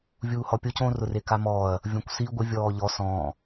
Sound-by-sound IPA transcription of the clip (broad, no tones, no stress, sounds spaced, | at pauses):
vʲ uː h ɔ pʲ o c õ r ʊ r e k a m ɔː ɐ̯ | vʲ ɔ̃ kʷ s i ɡʷ ɪ vʲ ɔː ʎ ɔ s ɔ̃ː